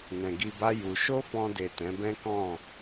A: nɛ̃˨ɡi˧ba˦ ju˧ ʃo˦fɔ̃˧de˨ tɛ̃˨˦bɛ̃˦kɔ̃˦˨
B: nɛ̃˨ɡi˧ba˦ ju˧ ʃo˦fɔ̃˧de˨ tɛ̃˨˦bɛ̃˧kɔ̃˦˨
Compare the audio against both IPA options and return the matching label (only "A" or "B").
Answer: A